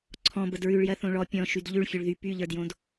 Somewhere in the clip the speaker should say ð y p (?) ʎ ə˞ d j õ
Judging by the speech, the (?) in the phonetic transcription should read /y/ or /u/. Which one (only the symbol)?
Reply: y